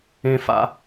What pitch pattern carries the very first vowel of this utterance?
high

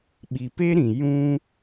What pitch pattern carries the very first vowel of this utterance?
low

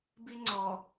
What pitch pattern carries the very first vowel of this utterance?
high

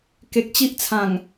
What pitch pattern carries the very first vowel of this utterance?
low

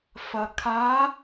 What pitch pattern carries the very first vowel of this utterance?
low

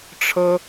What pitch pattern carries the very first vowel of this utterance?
high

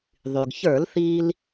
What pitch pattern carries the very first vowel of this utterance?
low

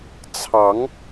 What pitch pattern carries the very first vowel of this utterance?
rising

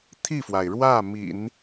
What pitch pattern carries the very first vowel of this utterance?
falling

